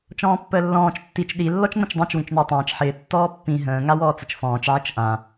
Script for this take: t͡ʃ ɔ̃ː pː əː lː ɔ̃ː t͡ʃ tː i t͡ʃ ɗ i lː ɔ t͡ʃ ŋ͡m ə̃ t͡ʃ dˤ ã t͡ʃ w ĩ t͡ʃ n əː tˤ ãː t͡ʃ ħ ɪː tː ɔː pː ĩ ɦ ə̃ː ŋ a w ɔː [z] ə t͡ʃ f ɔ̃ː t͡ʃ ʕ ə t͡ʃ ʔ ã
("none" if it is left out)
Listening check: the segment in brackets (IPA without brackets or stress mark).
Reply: t͡s